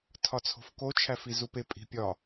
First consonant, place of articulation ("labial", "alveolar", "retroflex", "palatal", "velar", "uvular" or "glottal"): alveolar